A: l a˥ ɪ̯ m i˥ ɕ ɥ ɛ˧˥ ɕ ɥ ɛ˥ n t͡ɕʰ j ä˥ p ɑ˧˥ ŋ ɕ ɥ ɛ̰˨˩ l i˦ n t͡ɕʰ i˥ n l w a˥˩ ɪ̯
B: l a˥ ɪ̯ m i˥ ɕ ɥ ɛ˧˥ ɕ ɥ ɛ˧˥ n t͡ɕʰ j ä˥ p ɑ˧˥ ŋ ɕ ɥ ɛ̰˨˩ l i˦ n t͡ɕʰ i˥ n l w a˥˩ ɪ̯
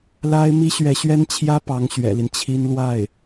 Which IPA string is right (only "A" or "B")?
A